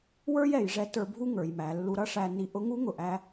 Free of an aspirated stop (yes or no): yes